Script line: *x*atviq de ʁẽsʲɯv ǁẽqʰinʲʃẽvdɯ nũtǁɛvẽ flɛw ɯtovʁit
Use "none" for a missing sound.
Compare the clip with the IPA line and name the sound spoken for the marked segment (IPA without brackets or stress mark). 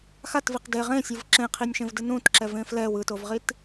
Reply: x